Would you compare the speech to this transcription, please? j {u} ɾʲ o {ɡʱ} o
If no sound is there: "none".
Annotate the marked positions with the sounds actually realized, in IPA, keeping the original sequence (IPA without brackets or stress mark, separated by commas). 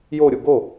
o, ɡ